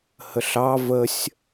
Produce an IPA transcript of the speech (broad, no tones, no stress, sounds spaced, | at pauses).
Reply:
h ə ɬ ɑ v ə sʲ